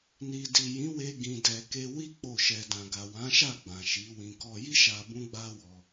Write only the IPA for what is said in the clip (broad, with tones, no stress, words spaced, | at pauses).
ni˨di˨ jĩ˨˦we˧ ɡĩ˧dɛ˧ ke˧wi˦ k͡po˦˨ʃɛ˧ dã˨ɡa˨wã˨˦ʃa˦˨ ɡ͡bã˨ʃi˨˦wĩ˧ kɔ˧ji˦ʃa˧ bũ˦ɡ͡ba˦wɔ˧